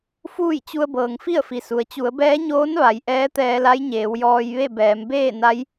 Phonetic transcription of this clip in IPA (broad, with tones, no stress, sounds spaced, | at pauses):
f uː˥˨ j t͡ɕ u˧ ə̯ b ɤː˩ ŋ f i˥˨ ə̯ f i˩ s u˩ ə̯ t͡ɕ u˩˧ ə̯ b ɛː˧˥ ɲ oː˧˥ n ʋ a˩˧ j ʔ ɛː˧˥ t̪ ɛː˧ l a˧˥ j ɲ eː˩˧ w j ɔː˧ j ʋ e˥˨ b ɛː˩˧ m b eː˥˨ n a˧˥ j